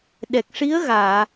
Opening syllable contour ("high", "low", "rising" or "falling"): low